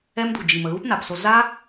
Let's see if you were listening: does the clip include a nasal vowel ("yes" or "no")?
no